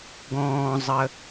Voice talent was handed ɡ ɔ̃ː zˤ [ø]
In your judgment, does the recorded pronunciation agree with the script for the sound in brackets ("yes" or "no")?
no